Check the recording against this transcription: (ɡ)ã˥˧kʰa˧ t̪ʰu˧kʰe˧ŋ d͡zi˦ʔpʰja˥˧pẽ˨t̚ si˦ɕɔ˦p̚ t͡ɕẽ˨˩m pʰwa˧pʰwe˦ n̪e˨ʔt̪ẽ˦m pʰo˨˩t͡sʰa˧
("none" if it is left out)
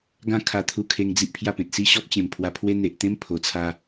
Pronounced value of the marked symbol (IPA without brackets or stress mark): ɡ